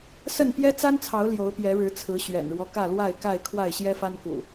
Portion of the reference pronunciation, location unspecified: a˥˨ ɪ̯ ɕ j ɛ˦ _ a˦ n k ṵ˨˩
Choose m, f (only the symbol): f